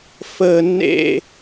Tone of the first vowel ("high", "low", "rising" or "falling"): high